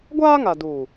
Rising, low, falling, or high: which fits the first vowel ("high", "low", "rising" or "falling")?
high